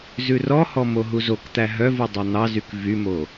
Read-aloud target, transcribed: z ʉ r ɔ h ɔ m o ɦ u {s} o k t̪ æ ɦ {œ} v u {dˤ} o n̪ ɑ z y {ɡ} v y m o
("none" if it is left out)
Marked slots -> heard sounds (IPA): z, œ, dˤ, k

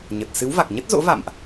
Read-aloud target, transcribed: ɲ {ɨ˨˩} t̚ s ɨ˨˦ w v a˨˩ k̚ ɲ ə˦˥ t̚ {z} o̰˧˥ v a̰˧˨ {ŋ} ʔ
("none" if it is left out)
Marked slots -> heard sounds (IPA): ə˨˩, z, m

